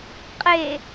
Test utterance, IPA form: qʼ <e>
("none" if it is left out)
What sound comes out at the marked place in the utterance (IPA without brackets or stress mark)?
e